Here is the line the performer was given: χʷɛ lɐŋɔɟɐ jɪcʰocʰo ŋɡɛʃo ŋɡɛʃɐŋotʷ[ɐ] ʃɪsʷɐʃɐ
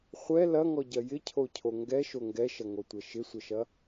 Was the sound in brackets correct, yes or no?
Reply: yes